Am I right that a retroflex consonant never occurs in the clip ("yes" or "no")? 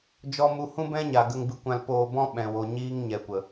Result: yes